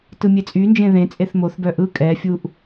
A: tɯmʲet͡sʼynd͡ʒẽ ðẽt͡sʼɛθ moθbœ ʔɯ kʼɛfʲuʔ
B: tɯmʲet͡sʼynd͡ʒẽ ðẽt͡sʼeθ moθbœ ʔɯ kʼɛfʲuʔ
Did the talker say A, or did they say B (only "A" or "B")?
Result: B